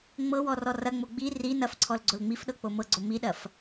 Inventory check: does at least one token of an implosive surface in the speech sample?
yes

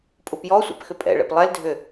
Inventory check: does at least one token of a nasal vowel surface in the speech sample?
no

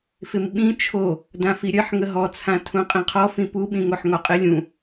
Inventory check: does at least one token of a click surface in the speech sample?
no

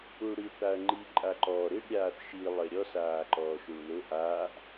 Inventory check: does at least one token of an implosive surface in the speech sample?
no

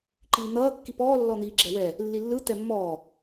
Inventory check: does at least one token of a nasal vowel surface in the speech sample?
no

